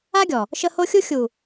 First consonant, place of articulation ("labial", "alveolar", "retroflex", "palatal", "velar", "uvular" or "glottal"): velar